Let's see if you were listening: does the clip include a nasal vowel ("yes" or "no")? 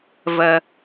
no